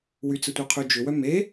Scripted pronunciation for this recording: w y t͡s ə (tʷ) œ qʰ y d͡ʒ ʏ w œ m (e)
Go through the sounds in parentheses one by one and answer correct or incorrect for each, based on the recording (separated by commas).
correct, correct